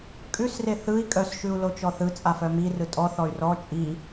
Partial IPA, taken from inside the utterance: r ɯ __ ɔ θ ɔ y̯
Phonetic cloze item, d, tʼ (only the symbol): tʼ